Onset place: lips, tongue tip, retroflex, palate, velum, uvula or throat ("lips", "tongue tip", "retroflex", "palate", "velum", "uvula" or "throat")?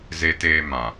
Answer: tongue tip